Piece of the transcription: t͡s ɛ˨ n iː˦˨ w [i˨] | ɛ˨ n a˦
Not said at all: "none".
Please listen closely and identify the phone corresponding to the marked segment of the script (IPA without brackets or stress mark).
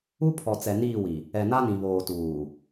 i˨